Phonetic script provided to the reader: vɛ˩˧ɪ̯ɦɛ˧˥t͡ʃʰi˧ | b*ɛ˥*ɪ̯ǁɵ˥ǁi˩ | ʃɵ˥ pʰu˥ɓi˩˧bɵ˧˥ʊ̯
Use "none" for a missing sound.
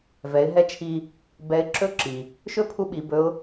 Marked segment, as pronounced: ɛ˧˥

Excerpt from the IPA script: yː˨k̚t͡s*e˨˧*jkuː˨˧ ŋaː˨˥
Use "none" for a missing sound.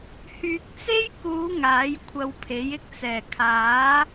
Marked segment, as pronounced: e˥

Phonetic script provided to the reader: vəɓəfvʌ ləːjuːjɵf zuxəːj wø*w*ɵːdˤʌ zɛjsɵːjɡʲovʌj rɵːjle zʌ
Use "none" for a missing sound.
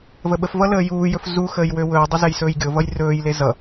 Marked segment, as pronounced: w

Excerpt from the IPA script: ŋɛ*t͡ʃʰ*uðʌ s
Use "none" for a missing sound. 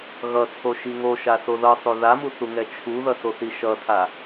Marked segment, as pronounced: t͡ʃʰ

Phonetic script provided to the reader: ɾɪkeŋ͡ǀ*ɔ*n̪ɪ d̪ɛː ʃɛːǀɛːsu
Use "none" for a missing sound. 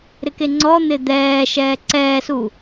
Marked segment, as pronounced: ɔ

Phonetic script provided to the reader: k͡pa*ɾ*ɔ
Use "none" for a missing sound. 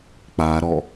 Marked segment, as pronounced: ɾ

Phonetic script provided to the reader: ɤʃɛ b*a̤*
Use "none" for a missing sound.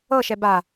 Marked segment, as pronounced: a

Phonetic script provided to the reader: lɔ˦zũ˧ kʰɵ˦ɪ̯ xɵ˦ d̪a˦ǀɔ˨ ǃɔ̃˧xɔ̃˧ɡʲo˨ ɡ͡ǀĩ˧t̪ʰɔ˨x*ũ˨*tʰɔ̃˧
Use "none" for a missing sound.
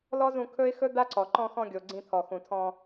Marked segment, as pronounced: ũ˨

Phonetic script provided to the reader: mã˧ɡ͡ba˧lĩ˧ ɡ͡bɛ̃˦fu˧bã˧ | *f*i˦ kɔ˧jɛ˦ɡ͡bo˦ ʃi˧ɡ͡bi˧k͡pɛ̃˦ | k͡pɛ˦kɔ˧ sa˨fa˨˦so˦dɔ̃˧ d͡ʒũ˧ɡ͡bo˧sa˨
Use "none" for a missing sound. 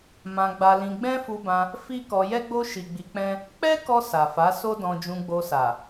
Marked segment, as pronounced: f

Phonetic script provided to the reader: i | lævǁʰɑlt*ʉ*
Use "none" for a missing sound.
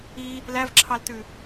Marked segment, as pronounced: ʉ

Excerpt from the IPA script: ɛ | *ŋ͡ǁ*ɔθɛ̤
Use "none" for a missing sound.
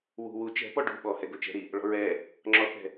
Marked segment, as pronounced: ŋ͡ǁ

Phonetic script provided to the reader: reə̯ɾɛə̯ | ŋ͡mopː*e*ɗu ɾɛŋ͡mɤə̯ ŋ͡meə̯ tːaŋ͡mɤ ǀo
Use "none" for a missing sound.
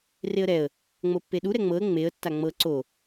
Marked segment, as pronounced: e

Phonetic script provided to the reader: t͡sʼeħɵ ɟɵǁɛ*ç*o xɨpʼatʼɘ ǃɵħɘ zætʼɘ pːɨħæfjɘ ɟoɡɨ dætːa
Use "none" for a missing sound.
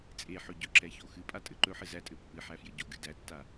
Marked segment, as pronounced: ç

